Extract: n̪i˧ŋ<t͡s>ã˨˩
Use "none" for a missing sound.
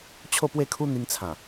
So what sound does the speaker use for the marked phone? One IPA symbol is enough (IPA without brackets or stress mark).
t͡sʰ